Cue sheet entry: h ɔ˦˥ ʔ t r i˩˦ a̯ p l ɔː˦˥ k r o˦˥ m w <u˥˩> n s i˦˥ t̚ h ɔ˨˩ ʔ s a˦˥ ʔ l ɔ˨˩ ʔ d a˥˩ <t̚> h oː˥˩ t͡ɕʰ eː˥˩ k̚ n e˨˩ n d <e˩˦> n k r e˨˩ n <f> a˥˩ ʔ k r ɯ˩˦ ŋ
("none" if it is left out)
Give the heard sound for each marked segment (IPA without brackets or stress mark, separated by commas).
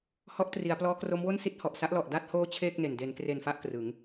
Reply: o˥˩, t̚, e˩˦, f